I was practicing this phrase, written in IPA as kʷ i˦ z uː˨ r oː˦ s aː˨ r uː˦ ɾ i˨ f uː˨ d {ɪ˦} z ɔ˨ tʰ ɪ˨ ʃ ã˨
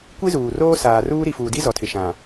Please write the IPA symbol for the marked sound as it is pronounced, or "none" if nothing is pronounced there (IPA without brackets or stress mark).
i˦